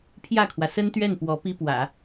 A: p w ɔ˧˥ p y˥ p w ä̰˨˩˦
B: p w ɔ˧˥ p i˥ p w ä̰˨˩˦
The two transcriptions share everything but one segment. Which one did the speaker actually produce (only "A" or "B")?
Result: B